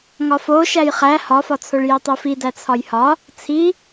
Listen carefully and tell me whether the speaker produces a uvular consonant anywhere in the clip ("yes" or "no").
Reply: yes